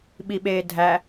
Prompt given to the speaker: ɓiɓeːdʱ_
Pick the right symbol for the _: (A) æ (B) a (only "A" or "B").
A